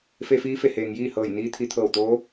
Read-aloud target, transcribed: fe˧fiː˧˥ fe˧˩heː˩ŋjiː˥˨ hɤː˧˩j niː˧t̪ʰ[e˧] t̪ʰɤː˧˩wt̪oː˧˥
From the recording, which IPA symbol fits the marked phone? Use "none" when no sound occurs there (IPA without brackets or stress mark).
i˧